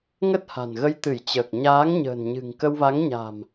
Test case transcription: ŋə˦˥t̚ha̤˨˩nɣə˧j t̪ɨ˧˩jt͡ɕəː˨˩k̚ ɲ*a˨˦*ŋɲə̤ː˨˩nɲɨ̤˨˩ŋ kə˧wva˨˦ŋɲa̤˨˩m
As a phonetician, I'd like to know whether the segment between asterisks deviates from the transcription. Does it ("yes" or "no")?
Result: yes